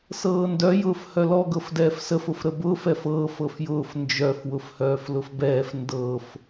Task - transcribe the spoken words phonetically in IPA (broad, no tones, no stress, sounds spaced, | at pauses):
s ɤː n d œ j ʊː f h œ l ɔ ɡ ɤ f d ɛː f s ə f ʊ f ɾ ə b ʊː f ɛ f ɤː f ɤ f j ʊː f n d͡ʒ œ f w ʊ f h œː f l ʊ f b ɛː f n d ɤ f